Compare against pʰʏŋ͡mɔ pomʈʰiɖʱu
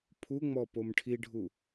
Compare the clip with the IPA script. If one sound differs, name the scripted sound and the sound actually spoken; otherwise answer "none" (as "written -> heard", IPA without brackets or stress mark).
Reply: ʏ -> u